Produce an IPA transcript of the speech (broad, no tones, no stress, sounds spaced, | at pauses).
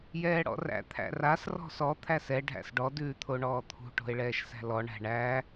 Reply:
j ɛː ɽ ɔ̰ r æ̰ t̪ʰ æ̰ r a s r ɔ̤ s ɔ t̪ʰ æ s ɛ ɖʱ æ̰ s ɖ ɔ d ʉː t̪ʰ o ɳ ɔː t̪ʰ ṳ ʈ o̤ e̯ ɭ ɛː ʃ s æ̤ l ɔ ɳ æ̤ ɳ æ